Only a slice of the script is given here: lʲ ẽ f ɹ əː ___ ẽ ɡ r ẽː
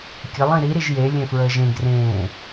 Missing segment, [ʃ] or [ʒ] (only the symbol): ʒ